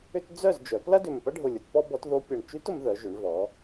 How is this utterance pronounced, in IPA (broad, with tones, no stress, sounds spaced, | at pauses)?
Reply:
ʏ˥ t d͡z œ˥˨ z d͡ʒ œ˩˧ p l ɐ˥ d ʏ˧˩ m p ɐ˥ ɖʱ ʊ˧˩ lʲ ʊ˩˧ t p ɔ˥ b ɔ˧˥ t ð o˧˥ pʲ ɐ˧˩ ɳ t͡ʃ y˧˥ t ʊ˩˧ m ð œ˩˧ ʒ ʏ˩˧ ɳ v ɔ˩˧